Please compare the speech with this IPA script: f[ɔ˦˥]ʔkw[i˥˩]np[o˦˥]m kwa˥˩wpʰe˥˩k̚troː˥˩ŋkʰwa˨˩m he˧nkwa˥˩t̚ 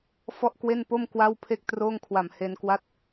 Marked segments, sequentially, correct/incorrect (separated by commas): incorrect, incorrect, incorrect